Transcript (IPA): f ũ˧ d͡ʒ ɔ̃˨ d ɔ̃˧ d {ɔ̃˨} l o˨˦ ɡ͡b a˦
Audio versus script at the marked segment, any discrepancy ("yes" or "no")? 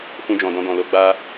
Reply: no